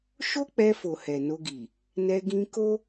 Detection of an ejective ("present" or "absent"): absent